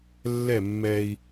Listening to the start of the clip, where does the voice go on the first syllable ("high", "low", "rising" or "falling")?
falling